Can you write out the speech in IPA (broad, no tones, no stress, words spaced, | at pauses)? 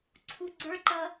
ǀʰuɡ͡ǀə˞ǃʌ